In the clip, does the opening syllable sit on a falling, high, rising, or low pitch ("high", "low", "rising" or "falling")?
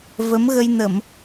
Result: rising